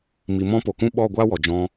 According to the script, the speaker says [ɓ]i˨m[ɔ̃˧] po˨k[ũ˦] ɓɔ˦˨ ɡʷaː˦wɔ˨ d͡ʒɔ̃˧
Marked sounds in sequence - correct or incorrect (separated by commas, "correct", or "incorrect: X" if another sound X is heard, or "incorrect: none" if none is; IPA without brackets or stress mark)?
incorrect: m, correct, correct